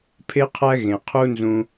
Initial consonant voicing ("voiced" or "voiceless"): voiceless